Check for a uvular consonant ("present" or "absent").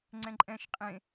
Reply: present